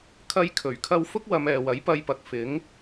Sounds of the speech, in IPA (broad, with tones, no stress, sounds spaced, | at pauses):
kʰ ɐ˧ j kʰ ɵ˨˩ ɥ kʰ ɐ˧ w f ʊ˥ k̚ w ɐ˨˧ m ɛː˨ w ɐ˨˥ j p ɐ˧ j p ɐ˨ k̚ f ɪ˨˥ ŋ